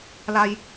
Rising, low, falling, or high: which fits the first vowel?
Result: low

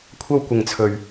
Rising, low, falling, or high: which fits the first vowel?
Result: high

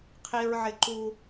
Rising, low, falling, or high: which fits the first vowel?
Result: high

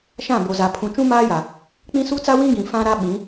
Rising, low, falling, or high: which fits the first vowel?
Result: falling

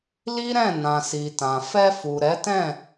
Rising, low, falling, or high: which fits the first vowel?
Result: high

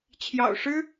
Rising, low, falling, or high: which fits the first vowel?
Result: low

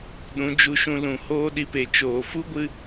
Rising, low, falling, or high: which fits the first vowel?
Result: rising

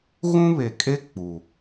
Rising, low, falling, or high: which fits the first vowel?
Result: high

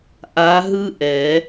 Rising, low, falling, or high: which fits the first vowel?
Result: rising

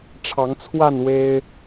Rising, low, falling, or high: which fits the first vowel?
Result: rising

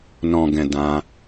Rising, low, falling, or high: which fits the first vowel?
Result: low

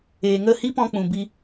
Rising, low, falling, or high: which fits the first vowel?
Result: low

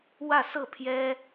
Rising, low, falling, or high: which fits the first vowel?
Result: falling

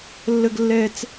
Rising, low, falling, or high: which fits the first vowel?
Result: high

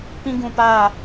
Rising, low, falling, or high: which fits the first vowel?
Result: high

